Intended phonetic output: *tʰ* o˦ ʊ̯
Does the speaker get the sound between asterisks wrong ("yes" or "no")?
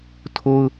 no